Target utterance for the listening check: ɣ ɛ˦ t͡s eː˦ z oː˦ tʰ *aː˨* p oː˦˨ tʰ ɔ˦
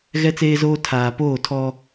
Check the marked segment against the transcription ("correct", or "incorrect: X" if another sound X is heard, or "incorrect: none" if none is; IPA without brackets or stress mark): correct